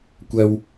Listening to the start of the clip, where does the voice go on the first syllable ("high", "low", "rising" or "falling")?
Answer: high